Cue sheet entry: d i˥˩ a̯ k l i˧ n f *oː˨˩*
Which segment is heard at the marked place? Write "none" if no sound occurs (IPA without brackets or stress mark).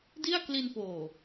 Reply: oː˨˩